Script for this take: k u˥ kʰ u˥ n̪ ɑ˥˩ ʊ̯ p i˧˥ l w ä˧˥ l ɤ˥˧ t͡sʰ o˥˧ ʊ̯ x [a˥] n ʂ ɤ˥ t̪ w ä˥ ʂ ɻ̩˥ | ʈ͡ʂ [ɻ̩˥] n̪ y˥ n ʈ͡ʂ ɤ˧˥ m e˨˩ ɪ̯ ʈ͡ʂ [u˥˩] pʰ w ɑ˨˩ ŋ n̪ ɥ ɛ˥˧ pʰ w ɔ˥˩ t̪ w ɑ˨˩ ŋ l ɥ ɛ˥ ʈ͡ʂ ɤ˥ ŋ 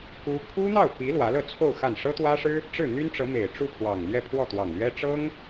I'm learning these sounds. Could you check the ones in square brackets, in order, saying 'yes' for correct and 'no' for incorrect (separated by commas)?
no, no, yes